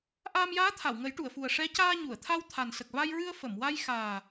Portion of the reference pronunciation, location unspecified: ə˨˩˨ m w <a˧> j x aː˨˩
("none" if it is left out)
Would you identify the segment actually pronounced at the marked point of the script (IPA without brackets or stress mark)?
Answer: a˧